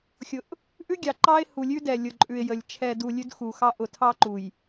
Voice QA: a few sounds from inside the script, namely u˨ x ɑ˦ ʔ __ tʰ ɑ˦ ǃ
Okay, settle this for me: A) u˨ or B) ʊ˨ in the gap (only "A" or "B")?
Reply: B